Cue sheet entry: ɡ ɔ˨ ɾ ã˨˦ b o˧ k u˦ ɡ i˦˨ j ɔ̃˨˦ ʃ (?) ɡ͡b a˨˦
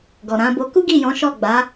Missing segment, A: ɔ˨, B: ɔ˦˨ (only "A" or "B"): B